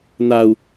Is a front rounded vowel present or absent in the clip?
absent